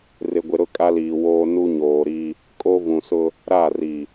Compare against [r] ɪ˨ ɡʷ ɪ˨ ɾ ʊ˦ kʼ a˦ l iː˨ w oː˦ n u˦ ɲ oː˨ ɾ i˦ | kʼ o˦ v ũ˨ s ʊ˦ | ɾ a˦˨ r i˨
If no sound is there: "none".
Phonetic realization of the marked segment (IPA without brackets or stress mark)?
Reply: r